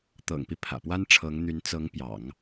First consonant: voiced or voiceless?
voiceless